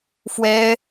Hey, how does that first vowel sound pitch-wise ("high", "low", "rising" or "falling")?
high